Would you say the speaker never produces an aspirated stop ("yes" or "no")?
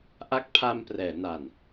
no